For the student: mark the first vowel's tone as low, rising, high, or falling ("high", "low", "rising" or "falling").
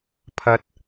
rising